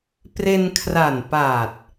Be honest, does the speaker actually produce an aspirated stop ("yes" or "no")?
yes